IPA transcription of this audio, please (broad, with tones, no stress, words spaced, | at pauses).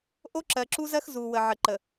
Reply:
ʔo˦ǁɜ˨ǁu˦zɜ˦x zu˨ wə˨ʕə˨ǃə˨